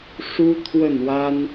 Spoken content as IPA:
ʂu˥t̪ʰwə˥˩nwa˥n

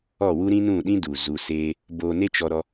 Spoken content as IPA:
ɔ˦˨wu˦ ɾĩ˦nũ˦˨ɗĩ˦du˨ zu˧seː˦ | boː˧ne˦t͡ʃɔ˧ɾɔ˧

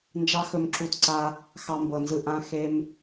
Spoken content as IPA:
nd͡ʒɑ˦xɵ˧mǁu˧t ǀa˧ | xɑ˧mbɤ˨nzɯ˧ ʔã˧ xe˧m

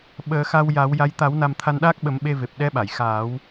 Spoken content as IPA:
ɓəː˨˩˦xa˧wja˨˩˦w ja˧˥j t̪a˨˩˦wna˨˩m t̪ʰa˧nɗaː˦˥k̚ɓə˨˩˦m ɓe˧ve˨˩p̚ ɗɛ˧˥ɓa˨˩˨j xaː˨˩˦w

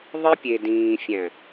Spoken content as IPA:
ðˤi˦pʲe˨dĩː˨ fʲæ̃˨

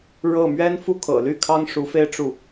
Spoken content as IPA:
ɻɤ˥˩ mɥɛ˥nfu˥ kʰɤ̰˨˩ly˥˩ kʰɑ˥ŋʂu˧˥fe˥˧ɪ̯ ʈ͡ʂu˥˩

